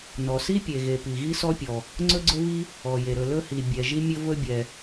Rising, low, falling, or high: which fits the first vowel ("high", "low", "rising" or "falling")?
low